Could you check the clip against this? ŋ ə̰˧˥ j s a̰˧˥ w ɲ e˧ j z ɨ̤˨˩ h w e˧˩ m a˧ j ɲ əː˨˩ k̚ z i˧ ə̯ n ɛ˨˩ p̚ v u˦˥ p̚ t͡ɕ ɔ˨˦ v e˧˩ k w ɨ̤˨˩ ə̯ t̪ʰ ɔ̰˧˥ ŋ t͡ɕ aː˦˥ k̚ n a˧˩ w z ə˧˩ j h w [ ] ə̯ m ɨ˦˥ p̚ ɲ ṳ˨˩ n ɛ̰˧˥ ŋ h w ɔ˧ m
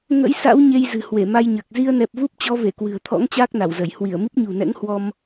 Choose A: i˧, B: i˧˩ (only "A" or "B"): B